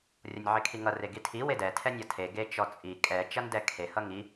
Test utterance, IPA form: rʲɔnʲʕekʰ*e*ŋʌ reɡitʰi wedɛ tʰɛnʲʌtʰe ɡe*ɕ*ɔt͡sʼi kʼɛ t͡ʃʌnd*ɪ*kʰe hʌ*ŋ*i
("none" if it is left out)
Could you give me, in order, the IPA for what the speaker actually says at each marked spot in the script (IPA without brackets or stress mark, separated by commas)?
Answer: i, t͡ʃ, ɛ, ŋ